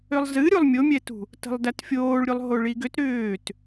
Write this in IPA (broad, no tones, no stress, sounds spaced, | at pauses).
ʏ lˠ z ɨ ɾʲ u lˠ mʲ o mʲ ɛ t ṳ | t ə̤ lˠ d æ t fʲ oː ɭ ɾʲ u lˠ ɦ o ɭ i ɡ ʏ t ɾ ʏː t